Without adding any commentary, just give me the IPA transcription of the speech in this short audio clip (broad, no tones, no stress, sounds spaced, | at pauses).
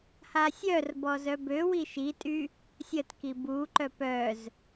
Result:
h a sʲ œ r b ɔ z œ b ø w i ʃ i tʼ y | sʲ ə t k i b u ǃ œ p œ z